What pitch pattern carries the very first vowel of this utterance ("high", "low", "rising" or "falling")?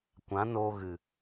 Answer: rising